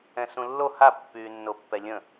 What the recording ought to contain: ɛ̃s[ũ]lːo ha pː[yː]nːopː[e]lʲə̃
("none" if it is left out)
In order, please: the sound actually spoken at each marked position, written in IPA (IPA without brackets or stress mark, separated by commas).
ũ, yː, ɛ